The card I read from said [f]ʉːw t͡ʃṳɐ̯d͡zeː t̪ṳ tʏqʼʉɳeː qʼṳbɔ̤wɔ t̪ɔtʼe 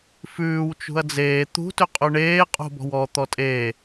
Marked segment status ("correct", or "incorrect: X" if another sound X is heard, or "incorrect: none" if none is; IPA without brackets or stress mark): correct